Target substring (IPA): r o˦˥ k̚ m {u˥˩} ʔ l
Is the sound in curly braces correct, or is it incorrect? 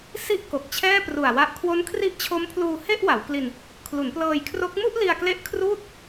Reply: correct